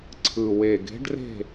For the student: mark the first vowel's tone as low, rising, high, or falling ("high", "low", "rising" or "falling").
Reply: low